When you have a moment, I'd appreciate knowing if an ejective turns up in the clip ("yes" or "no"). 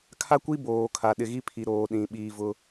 no